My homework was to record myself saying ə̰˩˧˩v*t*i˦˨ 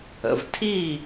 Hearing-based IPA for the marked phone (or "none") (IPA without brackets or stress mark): tʰ